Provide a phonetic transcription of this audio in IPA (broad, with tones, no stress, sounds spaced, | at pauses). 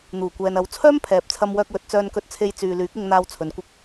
n̪ uː˨˩ kʷ ɛː˨ n ɐ˨˥ w t͡sʰ œː˥ m pʰ ɛː˨ p̚ t͡sʰ ɐ˧ m w œː˧ k̚ w ɵ˨˥ t̚ t͡s œː˧ n k ɵ˧ t̚ t͡sʰ e˧ j t͡s yː˨ l yː˨˥ k̚ ɪ˧ ŋ n̪ aː˧ w t͡sʰ ɵ˨˧ n kʷ ɪ˧ k̚